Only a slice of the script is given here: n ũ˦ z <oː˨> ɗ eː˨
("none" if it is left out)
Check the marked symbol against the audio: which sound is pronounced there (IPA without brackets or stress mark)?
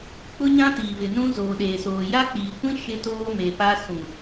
oː˨